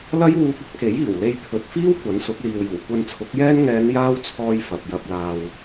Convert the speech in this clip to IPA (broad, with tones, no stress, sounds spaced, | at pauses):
l ɐ˥ j w uː˧ k̚ ɵ˥ t̚ k e˨˥ j iː˨˩ w l e˧ j t̪ʰ ɵ˨ t̚ f iː˥ w kʷ ɐ˨˥ n s ʊ˨˥ k̚ l iː˨ w j uː˨˩ kʷ ɐ˧ n t͡sʰ ʊ˨˥ k̚ j ɛː˥ n ŋ ɛː˨˧ n j aː˥ w t͡sʰ ɔː˧ j f ɐ˨ p̚ j ɐ˧ p̚ l aː˨ w